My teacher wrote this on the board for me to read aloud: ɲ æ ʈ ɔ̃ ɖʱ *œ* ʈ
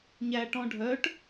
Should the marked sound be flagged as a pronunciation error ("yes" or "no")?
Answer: no